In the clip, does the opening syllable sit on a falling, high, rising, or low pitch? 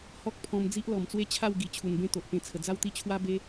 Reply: high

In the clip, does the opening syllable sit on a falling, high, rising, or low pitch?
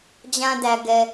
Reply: high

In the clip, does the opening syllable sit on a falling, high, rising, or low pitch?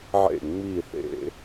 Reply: falling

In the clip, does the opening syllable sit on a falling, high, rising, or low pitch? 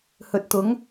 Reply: low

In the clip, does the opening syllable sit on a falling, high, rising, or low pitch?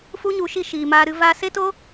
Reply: high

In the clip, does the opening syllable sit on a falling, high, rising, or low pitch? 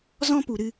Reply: high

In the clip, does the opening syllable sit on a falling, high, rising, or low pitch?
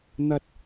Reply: high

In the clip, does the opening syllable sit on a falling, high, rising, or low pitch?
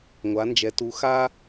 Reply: rising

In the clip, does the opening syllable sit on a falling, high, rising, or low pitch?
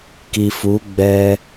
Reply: low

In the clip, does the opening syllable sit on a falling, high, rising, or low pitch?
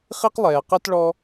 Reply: high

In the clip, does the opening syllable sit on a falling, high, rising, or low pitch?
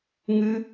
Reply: high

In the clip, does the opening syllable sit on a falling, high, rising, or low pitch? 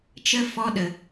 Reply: high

